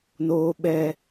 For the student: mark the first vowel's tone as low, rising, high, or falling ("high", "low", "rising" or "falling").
high